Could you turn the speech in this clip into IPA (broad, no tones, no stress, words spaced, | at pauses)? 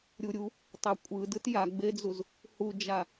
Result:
ɾʲuɾʲu | tˤœkʷʼɯdɯt jaɡ͡bed͡zuz | hud͡ʒa